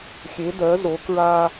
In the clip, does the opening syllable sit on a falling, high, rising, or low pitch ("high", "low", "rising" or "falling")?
rising